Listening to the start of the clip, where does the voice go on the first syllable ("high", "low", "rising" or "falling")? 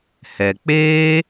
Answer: low